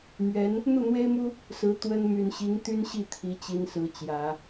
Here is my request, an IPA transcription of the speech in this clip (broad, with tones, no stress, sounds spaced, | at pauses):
m ɥ ɛ˧˥ n | n̪ u˥˩ n̪ w e˥ ɪ̯ m u˥ | s ɹ̩˧˥ t̪ w ə˥ n m y˨˩ n ɕ i˧˥ ŋ t̪ y˥ n ɕ i˥˩ t̪ʰ i˧˥ t͡ɕ i˧˥ n s ɹ̩˧˥ t͡ɕ j ä˨˩˦